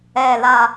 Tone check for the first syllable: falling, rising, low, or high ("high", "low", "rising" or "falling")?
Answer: low